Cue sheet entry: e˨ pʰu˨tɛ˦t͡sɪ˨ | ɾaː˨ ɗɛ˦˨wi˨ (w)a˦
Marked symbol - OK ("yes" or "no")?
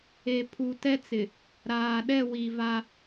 no